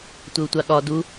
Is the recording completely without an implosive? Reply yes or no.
no